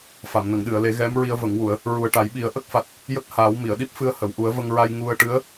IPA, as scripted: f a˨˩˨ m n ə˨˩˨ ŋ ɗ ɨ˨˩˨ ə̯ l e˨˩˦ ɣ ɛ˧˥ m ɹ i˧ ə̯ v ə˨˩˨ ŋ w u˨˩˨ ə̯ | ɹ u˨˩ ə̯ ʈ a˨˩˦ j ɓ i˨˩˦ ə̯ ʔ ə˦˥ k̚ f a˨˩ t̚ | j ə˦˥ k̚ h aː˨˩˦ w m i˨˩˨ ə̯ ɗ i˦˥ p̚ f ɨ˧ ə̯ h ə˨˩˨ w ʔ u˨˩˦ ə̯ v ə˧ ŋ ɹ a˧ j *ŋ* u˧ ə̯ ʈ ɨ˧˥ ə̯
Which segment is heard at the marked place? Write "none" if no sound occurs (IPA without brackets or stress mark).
ŋ